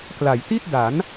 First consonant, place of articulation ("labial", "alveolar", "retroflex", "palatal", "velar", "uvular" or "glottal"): velar